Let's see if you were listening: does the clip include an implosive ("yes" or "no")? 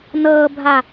no